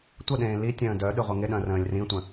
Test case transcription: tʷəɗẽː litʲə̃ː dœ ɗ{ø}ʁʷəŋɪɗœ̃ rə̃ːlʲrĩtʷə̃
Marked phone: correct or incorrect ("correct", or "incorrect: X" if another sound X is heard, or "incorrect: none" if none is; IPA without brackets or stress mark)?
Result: incorrect: y